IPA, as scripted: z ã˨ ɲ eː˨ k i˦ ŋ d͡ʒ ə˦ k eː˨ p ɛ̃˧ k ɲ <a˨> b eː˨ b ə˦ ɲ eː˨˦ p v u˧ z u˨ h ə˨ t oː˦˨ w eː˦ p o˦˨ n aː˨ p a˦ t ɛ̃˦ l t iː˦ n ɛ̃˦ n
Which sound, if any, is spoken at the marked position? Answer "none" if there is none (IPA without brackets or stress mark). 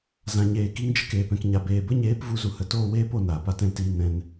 a˨